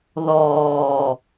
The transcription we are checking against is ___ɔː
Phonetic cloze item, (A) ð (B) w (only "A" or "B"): A